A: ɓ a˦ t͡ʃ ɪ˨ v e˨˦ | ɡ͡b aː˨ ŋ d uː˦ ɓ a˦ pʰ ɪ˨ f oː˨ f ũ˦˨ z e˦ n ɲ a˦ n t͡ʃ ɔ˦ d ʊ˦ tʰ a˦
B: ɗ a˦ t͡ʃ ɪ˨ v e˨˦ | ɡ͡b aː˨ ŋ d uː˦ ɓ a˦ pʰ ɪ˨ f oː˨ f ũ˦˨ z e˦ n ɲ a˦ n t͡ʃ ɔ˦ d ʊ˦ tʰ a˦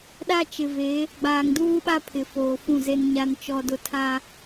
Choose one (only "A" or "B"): B